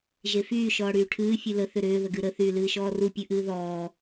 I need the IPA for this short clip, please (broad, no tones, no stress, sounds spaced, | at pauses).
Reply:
ʒ e f yː ʃ ɔː ɽ yː ʈʰ ɨː fʲ ɨ l ə θ ʏ ɾ ʏː ð ə ɡ ɨ ɾ ə θ yː l ɨː ʃ ɔː r u pʲ ɨ ʔ ɨː ð ɔː